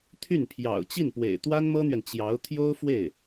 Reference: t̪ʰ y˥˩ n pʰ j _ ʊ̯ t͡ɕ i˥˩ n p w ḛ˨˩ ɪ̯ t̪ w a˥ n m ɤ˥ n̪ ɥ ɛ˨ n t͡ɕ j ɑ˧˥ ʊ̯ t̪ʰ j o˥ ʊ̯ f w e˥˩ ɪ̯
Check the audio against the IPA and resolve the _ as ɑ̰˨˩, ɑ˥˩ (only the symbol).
ɑ̰˨˩